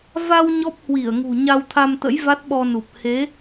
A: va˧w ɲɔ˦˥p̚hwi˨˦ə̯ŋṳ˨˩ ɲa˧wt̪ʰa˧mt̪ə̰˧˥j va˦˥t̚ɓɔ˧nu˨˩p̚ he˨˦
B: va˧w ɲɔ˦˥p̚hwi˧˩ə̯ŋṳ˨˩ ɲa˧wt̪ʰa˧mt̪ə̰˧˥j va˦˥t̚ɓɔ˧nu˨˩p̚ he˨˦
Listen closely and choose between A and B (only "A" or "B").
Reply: B